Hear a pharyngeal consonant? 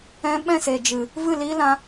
no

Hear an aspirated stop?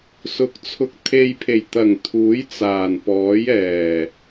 yes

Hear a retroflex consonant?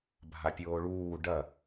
yes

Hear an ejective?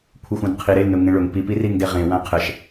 no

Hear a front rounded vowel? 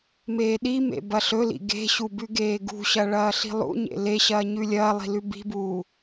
no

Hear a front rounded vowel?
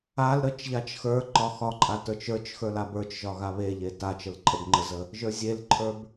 no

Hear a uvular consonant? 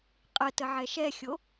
yes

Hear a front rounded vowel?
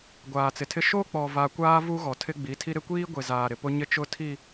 no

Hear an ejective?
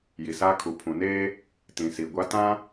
no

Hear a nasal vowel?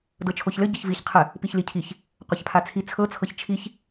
no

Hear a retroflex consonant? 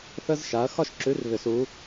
no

